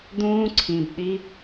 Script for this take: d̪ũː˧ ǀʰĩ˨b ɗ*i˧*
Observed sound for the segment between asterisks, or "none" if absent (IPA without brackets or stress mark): i˧